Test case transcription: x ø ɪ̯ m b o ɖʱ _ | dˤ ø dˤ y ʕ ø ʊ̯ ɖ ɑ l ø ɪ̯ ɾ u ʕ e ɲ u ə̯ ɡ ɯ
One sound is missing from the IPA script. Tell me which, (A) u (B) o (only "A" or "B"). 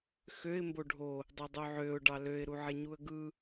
B